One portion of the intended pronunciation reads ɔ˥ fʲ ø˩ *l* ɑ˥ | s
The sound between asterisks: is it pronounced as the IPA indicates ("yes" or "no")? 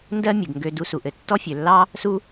no